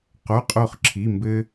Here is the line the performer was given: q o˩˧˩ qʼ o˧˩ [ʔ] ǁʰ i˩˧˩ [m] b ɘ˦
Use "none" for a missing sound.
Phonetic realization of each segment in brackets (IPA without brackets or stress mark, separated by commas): χ, m